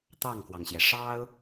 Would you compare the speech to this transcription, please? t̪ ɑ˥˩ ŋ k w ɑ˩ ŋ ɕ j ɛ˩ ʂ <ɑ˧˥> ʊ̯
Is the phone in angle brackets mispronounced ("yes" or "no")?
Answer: yes